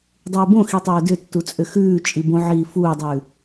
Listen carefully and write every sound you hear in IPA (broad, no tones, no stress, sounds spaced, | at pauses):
dˤ ʉː b õ x i tˤ œː d ʏ tː u t͡sʼ ʏ x ʉː t͡ʃʼ i b õ ʕ iː f uː dˤ ʉː